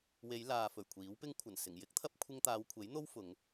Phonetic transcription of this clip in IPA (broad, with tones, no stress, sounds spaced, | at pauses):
w e˨˧ j l aː˨ f ɵ˨˩ ɥ kʷʰ iː˨˥ w p ɪ˥ ŋ kʷʰ ɐ˨˩ n s ɪ˨˩ ŋ j ɪ˥ k̚ t̪ʰ ɐ˥ p̚ kʷʰ ɪ˧ ŋ t̪ aː˨˧ w kʷʰ e˨˥ j n̪ o˥ w f ʊ˨˧ ŋ